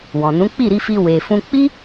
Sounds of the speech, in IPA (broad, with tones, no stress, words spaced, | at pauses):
wɔ̃˨nũ˨˦ k͡pi˦˨ɾi˧fi˧ we˨ fũ˧ k͡pi˦